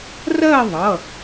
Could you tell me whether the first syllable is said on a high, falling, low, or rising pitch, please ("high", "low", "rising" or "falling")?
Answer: falling